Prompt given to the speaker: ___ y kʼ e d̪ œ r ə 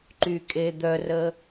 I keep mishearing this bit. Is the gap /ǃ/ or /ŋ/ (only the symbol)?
ǃ